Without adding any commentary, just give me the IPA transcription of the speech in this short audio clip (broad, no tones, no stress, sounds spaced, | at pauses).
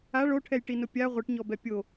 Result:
a ɭ o ʈʰ ɛ j ʈ i n ʊ pʲ a ʁʷ i ʈ ɲ ɔ b ɛ pʲ o